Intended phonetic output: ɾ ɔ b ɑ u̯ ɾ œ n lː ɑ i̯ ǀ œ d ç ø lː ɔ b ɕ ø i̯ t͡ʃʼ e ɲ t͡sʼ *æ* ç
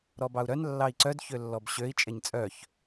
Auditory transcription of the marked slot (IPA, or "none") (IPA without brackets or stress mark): œ